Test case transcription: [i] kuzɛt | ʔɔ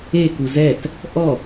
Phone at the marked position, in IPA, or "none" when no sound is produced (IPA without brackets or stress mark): e